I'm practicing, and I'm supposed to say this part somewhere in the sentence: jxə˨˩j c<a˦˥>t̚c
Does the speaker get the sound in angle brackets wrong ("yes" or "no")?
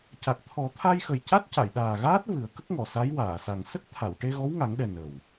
no